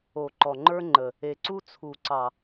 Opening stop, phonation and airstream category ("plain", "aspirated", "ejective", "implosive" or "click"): click